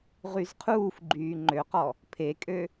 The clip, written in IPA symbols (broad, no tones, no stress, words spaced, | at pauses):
ʁyzqʰuːfɡ͡ǃyː ŋ͡ǃøqɔ | pʰekʼø